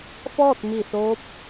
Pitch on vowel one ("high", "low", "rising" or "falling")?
falling